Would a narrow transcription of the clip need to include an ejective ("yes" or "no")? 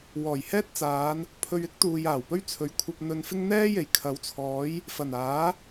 no